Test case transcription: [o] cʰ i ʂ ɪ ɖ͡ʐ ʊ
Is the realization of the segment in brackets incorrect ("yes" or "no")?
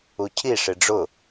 yes